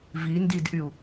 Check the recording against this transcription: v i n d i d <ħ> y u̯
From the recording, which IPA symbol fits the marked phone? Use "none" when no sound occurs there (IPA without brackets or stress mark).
ʔ